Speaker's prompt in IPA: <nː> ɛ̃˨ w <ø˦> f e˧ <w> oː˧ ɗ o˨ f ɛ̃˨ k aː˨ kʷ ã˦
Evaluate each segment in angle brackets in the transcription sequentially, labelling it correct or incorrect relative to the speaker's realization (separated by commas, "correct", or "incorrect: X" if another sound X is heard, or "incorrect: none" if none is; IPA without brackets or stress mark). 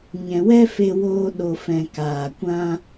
incorrect: ɲ, incorrect: ɛ˦, correct